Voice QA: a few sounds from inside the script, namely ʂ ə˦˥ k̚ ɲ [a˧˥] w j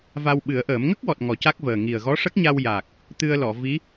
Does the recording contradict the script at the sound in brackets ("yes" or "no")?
yes